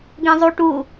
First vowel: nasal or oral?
nasal